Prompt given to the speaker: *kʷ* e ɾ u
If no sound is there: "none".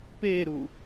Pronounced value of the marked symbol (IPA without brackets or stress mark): p